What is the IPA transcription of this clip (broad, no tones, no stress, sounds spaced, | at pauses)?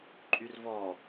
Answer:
ǃʼ y r v ɔ